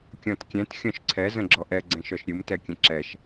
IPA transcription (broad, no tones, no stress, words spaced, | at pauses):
kʲɔ̃tkʲɛ̃t xʲɔ̃ʃǀʰɛ zə̃ɡ͡ǁɔʔɛ ɡ͡ǀɛ̃ʃɔʃɾʲɯm tɛkʲə̃ǁɛʃ